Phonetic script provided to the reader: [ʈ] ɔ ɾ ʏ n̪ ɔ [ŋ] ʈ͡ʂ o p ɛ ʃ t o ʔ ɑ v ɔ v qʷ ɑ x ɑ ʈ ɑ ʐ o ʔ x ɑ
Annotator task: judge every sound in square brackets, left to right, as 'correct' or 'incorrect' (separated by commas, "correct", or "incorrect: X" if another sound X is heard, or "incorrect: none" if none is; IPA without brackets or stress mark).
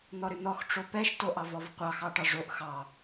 incorrect: n̪, incorrect: x